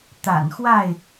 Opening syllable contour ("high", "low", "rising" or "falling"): low